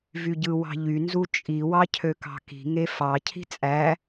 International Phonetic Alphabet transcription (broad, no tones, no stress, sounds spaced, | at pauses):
v y ɟ ɯ w ɑ̤ ʎ y n z u t͡ʃʼ i w ɑ cʰ ø k ɑ̤ k i̤ ŋ e f ɑ cʰ i̤ t͡sʼ æ